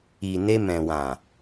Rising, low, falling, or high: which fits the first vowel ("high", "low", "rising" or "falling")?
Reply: low